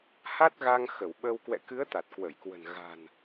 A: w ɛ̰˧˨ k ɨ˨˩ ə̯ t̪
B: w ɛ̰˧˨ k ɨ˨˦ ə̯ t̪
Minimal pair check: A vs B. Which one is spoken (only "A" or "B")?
B